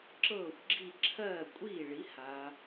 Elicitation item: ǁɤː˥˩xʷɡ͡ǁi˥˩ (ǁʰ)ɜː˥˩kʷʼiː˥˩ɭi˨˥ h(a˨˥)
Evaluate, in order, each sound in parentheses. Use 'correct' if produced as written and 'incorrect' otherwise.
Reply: correct, correct

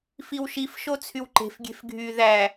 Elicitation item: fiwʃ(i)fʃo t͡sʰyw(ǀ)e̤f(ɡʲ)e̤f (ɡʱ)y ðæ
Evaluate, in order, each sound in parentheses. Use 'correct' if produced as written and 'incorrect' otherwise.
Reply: correct, incorrect: ǃ, correct, correct

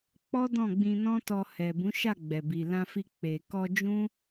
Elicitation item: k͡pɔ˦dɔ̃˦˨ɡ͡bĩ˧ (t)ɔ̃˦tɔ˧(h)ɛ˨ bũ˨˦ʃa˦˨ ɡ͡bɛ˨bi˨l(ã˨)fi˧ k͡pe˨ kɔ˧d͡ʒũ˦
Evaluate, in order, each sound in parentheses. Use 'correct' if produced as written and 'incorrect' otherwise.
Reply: incorrect: n, correct, incorrect: ã˧

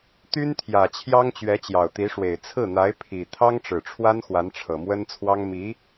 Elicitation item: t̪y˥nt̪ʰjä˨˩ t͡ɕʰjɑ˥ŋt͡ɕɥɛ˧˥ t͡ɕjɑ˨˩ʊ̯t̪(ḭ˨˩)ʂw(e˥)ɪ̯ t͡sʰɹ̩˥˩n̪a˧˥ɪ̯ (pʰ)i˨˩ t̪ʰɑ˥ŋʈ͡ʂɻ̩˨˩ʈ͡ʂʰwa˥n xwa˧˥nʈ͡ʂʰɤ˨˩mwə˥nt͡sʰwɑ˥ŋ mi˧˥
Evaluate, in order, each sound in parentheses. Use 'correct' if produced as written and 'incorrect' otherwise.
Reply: incorrect: i˧˥, incorrect: e˨˩, correct

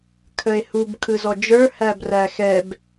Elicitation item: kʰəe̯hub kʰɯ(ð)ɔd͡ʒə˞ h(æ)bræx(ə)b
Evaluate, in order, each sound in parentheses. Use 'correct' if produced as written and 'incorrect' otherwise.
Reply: incorrect: z, correct, incorrect: ɛ

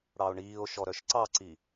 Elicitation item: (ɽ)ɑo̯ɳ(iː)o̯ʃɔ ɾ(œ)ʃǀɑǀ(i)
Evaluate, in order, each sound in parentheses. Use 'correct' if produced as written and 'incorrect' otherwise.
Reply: correct, correct, correct, correct

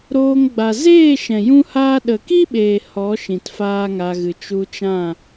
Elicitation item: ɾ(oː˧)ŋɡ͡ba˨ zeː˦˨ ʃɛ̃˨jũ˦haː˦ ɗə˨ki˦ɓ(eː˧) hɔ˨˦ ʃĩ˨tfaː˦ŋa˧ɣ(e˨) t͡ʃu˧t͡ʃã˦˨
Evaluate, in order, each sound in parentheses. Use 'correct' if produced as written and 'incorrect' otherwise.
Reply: correct, incorrect: eː˨, incorrect: ɨ˨

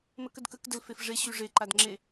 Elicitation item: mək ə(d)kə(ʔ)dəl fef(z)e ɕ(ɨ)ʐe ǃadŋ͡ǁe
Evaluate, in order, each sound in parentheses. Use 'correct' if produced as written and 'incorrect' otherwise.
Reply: correct, incorrect: k, incorrect: ʐ, incorrect: y

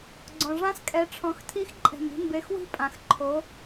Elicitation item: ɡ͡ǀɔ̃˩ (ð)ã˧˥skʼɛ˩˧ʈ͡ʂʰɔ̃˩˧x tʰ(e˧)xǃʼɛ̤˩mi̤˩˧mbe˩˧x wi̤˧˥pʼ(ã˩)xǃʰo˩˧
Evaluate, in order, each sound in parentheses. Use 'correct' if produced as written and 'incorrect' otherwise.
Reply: incorrect: ʐ, incorrect: i˧, correct

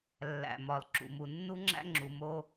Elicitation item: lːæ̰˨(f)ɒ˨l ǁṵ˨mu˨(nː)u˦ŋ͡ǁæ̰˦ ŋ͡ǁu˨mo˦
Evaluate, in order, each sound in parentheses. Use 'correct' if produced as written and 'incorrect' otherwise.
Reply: incorrect: m, correct

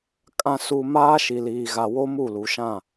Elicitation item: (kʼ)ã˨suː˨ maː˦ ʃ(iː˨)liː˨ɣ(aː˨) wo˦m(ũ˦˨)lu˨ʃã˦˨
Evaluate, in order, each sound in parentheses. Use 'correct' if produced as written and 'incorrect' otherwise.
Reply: correct, incorrect: i˨, incorrect: a˨, incorrect: u˦˨

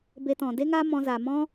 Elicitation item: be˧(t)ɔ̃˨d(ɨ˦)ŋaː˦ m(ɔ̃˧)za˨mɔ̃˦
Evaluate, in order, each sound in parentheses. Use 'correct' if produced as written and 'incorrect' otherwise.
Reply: correct, incorrect: e˦, correct

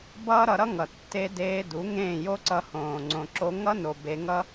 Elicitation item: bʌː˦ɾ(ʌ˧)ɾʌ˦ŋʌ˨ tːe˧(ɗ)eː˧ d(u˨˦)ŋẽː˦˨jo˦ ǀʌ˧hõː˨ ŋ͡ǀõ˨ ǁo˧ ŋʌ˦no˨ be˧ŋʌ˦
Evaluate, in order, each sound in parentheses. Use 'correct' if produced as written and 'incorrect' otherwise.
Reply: correct, incorrect: d, correct

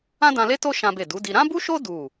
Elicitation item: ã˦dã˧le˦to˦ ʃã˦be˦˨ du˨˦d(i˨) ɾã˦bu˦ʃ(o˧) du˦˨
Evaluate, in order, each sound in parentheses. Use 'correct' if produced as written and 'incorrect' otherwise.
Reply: incorrect: i˧, incorrect: o˦

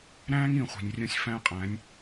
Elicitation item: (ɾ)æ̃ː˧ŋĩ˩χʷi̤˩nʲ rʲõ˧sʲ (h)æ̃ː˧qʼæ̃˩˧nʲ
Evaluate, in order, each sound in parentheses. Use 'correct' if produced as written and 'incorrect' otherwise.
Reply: correct, incorrect: f

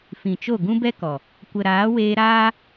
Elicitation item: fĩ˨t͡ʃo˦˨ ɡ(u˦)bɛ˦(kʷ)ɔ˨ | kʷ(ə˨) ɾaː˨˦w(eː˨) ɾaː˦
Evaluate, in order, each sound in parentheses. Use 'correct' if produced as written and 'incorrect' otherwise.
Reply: incorrect: ũ˦, incorrect: k, correct, incorrect: eː˧

